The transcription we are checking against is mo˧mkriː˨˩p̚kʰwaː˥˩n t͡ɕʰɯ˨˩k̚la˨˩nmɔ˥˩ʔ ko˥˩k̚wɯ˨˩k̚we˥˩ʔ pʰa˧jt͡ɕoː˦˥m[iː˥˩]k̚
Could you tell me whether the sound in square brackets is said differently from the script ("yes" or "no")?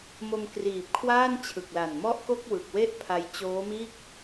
no